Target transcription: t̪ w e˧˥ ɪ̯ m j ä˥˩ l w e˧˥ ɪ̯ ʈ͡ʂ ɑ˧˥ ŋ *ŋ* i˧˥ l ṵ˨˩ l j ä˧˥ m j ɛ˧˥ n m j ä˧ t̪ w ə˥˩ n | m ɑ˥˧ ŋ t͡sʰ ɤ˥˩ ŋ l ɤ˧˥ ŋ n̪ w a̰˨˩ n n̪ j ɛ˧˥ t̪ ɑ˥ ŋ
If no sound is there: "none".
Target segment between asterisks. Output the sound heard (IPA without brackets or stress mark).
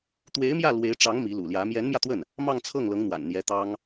m